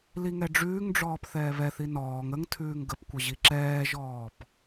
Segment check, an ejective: absent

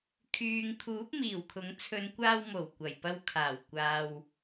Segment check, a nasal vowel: absent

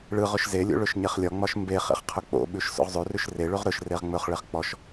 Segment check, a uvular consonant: present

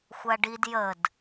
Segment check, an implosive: absent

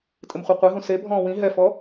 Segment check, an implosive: absent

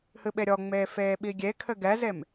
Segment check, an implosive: present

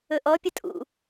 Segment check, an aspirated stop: absent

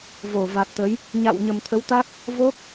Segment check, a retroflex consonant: absent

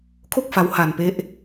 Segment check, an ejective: absent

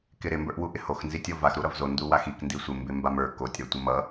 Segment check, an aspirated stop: absent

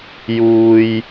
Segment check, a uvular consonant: absent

